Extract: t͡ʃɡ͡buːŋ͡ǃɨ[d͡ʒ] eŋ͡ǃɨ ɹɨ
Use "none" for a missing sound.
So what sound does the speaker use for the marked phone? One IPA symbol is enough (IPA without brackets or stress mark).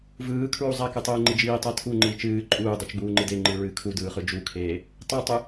d